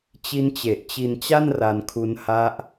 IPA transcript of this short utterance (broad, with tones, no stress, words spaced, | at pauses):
t͡ɕi˦˥nt͡ɕe˨˩ʔt͡ɕi˧nt͡ɕa˥˩n ra˧nkʰu˦˥n ha˦˥ʔ